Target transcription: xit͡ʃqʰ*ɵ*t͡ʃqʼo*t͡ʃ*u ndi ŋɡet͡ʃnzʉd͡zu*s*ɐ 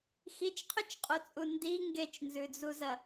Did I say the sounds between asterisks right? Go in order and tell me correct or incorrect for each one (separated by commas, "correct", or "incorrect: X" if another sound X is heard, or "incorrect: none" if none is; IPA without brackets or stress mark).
correct, incorrect: t͡sʼ, incorrect: z